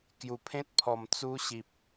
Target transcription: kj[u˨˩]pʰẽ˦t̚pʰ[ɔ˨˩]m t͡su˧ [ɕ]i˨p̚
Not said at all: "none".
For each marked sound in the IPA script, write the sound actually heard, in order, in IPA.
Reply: u˨˩, ɔ˨˩, ɕ

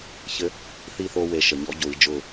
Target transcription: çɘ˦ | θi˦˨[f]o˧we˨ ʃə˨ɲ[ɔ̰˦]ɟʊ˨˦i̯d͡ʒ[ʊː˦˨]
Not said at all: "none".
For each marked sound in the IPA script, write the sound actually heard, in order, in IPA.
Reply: θ, ɔ̰˦, ʊː˦˨

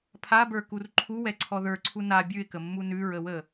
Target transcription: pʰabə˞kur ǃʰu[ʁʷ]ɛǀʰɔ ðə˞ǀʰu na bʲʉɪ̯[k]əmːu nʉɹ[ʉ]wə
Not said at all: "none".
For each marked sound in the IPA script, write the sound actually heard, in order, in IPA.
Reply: w, k, ə

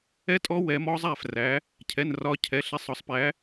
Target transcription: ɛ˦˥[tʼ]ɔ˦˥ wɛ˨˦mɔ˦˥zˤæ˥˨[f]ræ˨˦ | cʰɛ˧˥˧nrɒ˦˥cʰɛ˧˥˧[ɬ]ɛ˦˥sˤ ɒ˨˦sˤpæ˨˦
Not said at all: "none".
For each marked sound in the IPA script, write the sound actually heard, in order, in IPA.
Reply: tʼ, f, ɬ

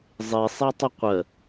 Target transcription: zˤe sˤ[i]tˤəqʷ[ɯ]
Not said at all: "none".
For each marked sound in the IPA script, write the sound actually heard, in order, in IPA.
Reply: e, ə

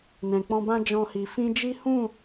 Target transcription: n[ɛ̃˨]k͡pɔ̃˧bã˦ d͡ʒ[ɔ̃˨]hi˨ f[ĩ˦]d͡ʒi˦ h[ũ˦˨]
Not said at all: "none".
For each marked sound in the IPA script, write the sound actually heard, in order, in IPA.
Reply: ɛ̃˨, ɔ̃˧, ĩ˧, ũ˦˨

